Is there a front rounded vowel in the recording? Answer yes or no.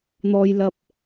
no